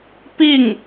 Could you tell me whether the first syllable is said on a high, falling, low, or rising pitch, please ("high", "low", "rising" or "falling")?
falling